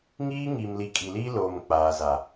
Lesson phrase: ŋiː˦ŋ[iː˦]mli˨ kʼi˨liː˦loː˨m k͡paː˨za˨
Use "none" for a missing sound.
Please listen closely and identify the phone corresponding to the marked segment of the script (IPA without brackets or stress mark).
iː˨